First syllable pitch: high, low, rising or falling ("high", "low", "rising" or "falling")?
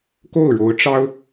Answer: falling